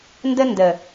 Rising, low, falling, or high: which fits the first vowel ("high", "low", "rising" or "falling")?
high